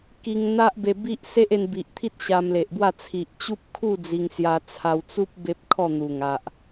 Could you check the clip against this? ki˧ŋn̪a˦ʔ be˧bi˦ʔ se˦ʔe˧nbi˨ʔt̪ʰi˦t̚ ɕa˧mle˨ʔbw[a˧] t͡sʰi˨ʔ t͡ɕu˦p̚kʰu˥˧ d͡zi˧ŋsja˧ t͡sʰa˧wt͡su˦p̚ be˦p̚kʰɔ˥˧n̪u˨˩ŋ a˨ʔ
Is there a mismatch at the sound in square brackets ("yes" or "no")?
yes